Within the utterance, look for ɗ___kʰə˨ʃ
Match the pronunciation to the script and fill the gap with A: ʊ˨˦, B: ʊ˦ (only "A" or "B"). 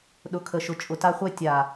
A